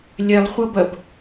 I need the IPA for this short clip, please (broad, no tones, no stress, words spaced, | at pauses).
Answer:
lʲɛlˠχʷʌbɐb